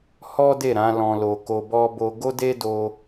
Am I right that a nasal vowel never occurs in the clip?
no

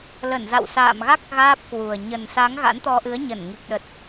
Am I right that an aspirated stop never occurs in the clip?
yes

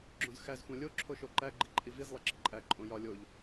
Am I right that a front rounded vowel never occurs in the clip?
yes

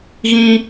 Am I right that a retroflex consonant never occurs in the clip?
yes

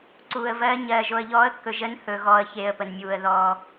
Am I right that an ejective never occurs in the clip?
yes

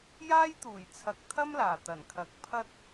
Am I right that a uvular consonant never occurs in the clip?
yes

